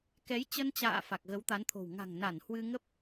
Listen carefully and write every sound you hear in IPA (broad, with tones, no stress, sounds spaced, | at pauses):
k ɛ˨˦ j t͡ɕ ə˧ n t͡ɕ a̰ː˧˨ f a˨˩ k̚ ɣ ə˨˦ w t̪ a˨˦ n t̪ʰ o̤˨˩ w ŋ a̤˨˩ ŋ n a˧˩ n h w ɨ˧ ŋ ə˦˥ p̚